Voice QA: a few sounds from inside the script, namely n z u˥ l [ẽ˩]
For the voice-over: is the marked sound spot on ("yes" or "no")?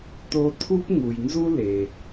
no